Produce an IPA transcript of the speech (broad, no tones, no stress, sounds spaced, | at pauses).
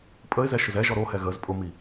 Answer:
pʼ ə ɪ̯ z ɛ ʃ ʊ z ɛ ʒ ɔ ɾ o h ɛ ɣ ə z pʼ ʊ m i